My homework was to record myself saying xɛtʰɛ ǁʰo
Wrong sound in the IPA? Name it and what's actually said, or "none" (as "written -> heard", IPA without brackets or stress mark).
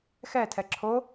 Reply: none